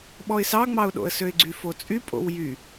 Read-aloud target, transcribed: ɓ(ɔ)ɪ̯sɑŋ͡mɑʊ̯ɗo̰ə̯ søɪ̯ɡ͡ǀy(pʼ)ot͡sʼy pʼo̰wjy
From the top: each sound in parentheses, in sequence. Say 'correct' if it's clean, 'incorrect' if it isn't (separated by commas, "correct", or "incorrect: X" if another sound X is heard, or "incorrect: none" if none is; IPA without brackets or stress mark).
correct, incorrect: f